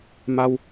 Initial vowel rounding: unrounded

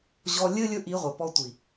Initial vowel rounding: rounded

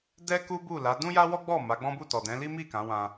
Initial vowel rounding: unrounded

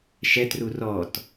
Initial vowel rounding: unrounded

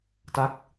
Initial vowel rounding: unrounded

